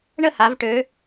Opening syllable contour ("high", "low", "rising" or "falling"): falling